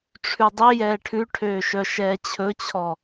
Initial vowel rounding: rounded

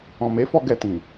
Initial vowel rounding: rounded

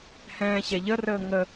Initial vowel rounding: unrounded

